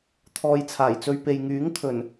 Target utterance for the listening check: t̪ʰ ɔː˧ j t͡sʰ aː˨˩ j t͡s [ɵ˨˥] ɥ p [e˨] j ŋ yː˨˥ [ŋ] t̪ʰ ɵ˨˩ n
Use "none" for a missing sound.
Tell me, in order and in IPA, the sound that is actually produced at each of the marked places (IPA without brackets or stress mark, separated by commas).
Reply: ɵ˧, e˨, ŋ